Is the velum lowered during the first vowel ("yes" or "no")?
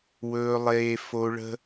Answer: no